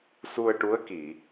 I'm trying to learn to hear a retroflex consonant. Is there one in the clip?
yes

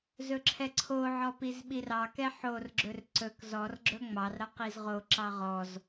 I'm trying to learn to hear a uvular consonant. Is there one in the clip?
yes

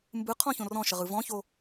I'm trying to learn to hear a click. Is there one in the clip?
no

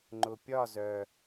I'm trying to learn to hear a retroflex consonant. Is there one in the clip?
no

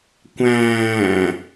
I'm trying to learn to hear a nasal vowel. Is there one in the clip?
yes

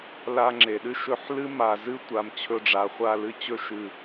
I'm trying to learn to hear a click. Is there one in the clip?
yes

